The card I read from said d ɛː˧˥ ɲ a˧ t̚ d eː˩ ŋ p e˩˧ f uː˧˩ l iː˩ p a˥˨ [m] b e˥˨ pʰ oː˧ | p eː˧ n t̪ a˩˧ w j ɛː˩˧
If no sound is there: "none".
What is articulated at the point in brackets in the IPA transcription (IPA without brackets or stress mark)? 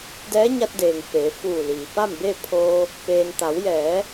m